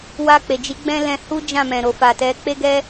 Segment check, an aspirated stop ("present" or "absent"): absent